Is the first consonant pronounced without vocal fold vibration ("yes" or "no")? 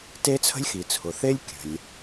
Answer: yes